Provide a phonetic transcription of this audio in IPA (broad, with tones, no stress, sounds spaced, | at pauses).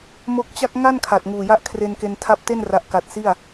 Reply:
m o˦˥ k̚ t͡ɕ a˥˩ k̚ ŋ a˥˩ n kʰ a˨˩ t̚ ŋ uː˨˩ j a˦˥ ʔ kʰ r e˧ n k e˧ n tʰ a˦˥ p̚ t e˥˩ n r a˥˩ ʔ k a˦˥ t̚ s i˥˩ a̯